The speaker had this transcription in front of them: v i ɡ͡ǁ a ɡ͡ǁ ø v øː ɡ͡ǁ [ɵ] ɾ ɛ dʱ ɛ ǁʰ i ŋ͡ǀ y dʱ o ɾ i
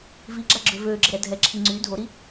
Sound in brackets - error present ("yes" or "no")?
yes